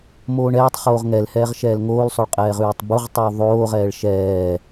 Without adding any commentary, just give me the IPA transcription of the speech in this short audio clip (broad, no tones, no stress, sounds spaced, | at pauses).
m oː ɳ ɛː tˤ χ oː ʁ ŋ ɛ l h ɛː ʁ ʃ ɛː l ŋ oː l sˤ o ɭ qʼ ɛː ʁ ʉː tˤ b u ʁ tˤ uː ðˤ oː ʁ ɛː ɭ ʃ ɛː